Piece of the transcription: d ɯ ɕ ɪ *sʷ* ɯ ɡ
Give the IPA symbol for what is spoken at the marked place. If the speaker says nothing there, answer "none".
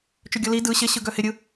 ɕ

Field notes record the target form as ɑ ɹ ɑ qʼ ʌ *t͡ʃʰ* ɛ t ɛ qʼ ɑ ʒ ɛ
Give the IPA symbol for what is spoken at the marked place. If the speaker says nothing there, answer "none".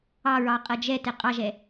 d͡ʒ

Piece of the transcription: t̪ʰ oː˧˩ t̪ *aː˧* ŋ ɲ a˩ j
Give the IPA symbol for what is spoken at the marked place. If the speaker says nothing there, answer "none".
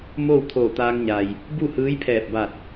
aː˧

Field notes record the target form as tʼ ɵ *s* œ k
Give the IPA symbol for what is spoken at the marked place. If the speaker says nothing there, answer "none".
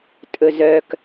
z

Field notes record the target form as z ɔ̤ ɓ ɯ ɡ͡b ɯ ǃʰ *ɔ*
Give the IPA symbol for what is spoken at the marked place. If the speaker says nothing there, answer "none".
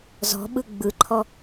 ɔ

